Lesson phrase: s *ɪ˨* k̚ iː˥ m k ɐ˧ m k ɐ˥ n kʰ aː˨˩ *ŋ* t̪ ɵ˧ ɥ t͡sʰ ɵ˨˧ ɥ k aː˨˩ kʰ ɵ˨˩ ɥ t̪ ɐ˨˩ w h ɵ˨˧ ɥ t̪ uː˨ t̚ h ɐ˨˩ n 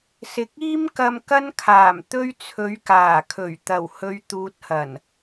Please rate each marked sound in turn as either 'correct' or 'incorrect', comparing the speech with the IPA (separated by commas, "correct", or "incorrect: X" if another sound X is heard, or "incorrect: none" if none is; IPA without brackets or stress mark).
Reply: correct, incorrect: m